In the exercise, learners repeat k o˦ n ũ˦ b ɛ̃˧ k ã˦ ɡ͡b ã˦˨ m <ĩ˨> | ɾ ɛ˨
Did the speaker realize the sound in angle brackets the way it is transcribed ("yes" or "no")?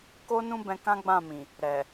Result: yes